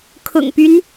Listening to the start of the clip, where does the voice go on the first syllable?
low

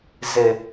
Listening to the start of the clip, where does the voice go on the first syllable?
low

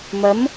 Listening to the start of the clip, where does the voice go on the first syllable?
rising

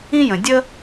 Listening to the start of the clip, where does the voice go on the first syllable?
high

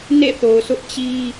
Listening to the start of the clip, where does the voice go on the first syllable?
falling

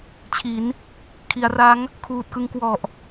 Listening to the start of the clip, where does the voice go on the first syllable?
rising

